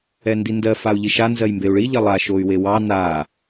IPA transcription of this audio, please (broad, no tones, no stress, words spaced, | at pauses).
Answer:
ɛndindɜ fau̯ʎiʃa nzɜjmbeu̯ɭi ʎɐlˠa ʃoy̯wewɑ na